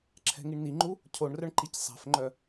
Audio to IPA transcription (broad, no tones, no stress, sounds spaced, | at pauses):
ǁʰ ɛ̤ ŋ i ɳ n i ŋ͡ǃ u | cʰ o ɳ r œ ɳ ǃ i c sˤ ɛ̤ f ŋ͡ǃ œ